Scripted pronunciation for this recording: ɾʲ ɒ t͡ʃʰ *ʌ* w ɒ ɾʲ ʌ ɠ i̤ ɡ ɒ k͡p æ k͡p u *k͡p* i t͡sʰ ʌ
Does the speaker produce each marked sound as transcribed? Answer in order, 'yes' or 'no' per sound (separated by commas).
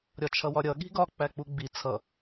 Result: yes, no